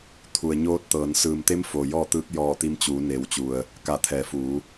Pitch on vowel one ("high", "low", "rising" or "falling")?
low